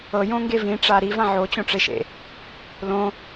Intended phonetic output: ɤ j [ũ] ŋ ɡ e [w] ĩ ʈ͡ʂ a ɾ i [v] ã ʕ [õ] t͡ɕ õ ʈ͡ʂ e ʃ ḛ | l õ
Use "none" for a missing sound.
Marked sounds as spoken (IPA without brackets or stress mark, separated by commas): õ, v, v, o